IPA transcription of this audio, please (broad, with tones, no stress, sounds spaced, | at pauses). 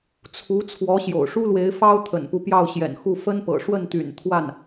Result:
t͡sʰ u˧˥ t͡sʰ w ɔ˧˥ ɕ j o̰˨˩ ʊ̯ ʂ u˥ l w e˧˥ ɪ̯ f ɑ˥ ʊ̯ t̪ʰ ə̰˨˩ n p u˦ p j ɑ˥˩ ʊ̯ ɕ j ɛ̰˨˩ n x u˥˩ f ə˥ n p ɤ̰˨˩ ʂ w ə˥˩ n t̪ y̰˨˩ n t̪ʰ w a˥˩ n